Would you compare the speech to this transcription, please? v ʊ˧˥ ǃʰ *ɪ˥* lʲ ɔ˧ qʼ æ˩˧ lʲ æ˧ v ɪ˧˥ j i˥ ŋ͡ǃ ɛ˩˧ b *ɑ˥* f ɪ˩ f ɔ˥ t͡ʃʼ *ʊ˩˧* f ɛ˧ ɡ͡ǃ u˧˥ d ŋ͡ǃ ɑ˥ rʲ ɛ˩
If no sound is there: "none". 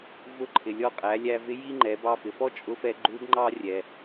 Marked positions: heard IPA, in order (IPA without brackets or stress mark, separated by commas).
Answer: ɪ˩, ɑ˧, ʊ˧